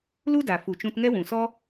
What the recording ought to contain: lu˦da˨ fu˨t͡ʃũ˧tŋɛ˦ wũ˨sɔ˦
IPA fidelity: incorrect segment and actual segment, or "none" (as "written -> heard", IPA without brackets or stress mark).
none